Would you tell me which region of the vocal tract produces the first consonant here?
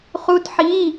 uvula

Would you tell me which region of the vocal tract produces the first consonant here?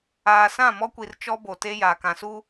tongue tip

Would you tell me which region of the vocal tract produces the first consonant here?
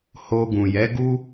throat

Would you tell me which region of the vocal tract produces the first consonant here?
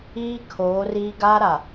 velum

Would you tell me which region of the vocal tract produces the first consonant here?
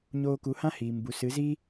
palate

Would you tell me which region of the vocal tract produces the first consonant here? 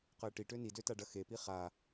uvula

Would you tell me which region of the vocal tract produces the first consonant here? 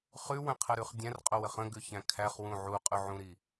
uvula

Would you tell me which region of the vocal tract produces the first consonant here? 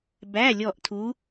lips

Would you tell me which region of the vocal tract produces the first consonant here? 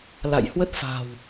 tongue tip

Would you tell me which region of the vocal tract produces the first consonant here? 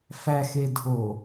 lips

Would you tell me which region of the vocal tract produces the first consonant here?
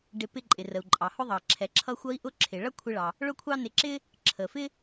retroflex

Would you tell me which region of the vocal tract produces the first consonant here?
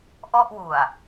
throat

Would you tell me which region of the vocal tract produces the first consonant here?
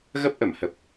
velum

